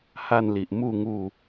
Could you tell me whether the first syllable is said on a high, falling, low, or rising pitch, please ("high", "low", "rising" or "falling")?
falling